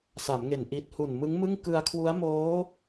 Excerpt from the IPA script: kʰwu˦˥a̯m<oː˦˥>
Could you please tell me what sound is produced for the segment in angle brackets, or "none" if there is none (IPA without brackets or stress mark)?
oː˦˥